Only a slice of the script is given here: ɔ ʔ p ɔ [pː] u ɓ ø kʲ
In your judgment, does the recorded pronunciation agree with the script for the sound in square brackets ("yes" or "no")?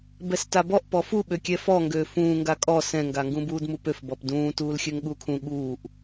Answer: no